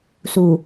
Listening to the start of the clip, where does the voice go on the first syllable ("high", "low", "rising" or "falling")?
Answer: low